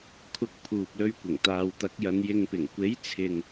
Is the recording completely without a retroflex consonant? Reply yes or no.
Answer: yes